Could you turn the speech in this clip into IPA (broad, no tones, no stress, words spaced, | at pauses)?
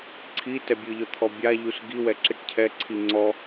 ǀʰi tɛbʲɯʎɔ t̪ʰɔbʲaʎus ɡiwɛ ǁiʈcʰɛǀʰi ŋ͡ǀɔ